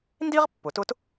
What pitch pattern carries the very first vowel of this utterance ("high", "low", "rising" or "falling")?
high